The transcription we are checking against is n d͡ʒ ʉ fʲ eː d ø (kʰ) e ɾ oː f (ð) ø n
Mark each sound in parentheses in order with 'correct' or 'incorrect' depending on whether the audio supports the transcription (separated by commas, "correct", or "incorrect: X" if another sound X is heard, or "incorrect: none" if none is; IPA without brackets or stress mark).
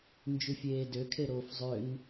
correct, incorrect: zˤ